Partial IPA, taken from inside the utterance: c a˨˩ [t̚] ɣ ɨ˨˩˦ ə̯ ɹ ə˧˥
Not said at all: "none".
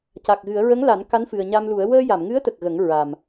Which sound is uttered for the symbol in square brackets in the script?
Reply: k̚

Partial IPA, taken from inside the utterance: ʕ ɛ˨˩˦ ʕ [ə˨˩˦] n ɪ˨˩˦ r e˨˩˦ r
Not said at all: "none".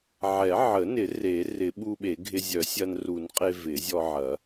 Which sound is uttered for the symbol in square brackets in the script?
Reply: ə˨˩˦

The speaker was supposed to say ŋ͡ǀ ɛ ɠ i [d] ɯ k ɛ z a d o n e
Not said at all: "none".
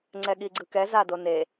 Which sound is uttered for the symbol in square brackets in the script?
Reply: ɡ͡ǀ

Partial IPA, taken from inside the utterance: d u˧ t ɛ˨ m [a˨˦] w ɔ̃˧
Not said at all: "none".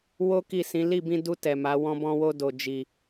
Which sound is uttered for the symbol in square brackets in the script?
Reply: a˨˦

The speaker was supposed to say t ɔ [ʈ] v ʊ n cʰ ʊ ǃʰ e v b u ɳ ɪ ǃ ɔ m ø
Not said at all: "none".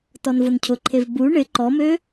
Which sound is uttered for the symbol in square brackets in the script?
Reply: n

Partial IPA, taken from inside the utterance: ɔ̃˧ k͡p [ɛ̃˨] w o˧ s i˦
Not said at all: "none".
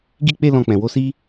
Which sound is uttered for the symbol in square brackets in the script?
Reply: ɛ̃˨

